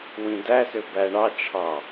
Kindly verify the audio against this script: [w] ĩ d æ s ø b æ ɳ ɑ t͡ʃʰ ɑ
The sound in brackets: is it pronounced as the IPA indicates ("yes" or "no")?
yes